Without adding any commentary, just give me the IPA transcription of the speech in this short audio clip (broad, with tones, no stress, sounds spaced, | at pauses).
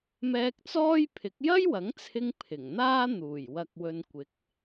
m ɛː˧ k̚ t͡s ɔː˥ j pʰ ɪ˨˥ k̚ j ɐ˥ j w ɐ˨˥ ŋ t͡sʰ ɪ˧ ŋ pʰ ɪ˨˩ ŋ n̪ aː˥ n̪ uː˨˩ j w ɐ˨ k̚ w ɵ˨ n kʷ ɪ˨˥ k̚